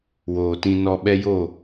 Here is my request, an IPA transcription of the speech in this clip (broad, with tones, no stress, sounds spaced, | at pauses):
w oː˨ t ĩ˧ n ɔ˧ ɓ ɛ˦ j o˦˨